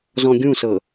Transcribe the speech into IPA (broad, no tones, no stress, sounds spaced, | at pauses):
z ɔ̃ ɡʲ ũ s ɤ